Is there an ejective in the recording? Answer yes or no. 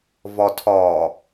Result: no